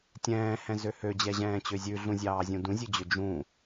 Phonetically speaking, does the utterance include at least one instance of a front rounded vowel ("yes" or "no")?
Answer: yes